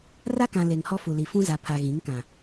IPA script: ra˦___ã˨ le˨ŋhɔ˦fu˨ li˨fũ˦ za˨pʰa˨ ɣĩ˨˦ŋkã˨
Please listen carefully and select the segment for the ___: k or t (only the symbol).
k